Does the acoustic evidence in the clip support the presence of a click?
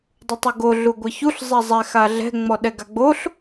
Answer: no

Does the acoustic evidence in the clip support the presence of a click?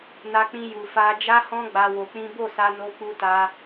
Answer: no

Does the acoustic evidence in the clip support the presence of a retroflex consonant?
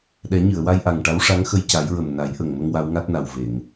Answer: yes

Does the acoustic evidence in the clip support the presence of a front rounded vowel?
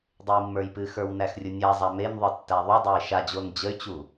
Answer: yes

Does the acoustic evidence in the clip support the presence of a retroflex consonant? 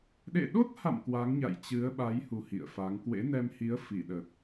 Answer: no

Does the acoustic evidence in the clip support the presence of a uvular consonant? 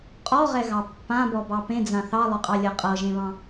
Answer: yes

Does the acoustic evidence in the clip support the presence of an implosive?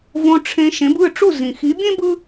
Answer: no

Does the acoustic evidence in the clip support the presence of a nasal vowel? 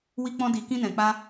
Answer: yes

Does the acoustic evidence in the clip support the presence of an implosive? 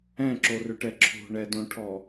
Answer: no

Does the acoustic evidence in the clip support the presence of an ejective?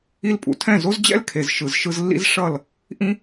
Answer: yes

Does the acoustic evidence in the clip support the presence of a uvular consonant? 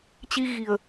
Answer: no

